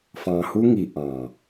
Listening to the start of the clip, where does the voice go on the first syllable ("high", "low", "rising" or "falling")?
low